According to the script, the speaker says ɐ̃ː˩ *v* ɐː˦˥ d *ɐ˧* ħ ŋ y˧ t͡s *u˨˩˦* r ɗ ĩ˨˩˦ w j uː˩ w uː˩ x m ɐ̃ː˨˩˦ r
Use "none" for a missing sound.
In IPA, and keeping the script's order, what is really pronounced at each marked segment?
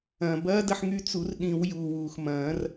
b, ɐ˧, u˨˩˦

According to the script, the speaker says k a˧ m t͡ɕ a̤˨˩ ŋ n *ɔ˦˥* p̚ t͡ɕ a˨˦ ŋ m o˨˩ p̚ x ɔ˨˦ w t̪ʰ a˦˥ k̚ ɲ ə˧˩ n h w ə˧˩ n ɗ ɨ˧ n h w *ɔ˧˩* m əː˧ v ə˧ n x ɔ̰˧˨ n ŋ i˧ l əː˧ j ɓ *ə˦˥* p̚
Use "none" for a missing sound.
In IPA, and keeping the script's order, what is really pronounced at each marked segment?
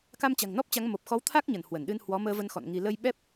ɔ˦˥, ɔ˨˦, ɛ˦˥

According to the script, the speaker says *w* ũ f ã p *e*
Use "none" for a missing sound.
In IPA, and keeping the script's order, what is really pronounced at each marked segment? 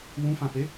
w, e

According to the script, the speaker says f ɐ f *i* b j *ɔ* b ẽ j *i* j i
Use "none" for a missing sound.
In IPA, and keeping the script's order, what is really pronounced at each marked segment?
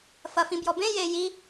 ĩ, ɔ, e

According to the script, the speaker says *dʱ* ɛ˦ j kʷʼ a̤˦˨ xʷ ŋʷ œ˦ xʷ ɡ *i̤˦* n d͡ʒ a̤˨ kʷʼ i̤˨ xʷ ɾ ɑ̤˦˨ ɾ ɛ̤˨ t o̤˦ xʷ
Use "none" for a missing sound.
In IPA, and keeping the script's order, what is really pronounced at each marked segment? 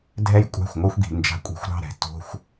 dʱ, i̤˨

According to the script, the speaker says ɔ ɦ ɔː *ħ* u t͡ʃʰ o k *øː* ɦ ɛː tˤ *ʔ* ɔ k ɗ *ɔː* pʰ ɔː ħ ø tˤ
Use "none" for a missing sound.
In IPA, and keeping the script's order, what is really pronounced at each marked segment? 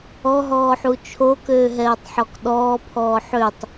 ħ, øː, ħ, ɔː

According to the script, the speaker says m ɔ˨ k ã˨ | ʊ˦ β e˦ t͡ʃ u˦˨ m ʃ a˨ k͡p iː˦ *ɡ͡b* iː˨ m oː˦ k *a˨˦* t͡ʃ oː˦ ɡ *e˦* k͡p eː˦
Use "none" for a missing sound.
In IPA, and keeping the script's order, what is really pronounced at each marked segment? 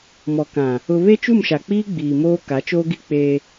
ɡ͡b, a˨˦, i˦

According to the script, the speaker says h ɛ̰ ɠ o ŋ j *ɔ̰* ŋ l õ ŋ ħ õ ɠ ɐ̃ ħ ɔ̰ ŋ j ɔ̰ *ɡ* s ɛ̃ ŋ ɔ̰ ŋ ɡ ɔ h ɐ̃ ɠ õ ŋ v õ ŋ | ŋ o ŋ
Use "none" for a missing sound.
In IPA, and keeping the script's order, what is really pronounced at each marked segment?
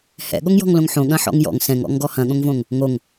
ɔ̤, ŋ

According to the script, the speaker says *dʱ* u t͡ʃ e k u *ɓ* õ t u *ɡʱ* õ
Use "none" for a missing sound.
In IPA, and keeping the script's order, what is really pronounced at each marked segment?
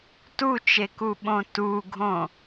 t, ɓ, ɡʱ

